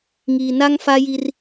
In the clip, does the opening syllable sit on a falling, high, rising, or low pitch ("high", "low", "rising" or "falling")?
low